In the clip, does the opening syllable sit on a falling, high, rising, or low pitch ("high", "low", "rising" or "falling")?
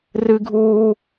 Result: high